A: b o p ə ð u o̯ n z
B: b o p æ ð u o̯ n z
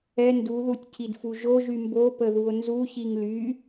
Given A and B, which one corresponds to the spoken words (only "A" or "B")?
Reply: A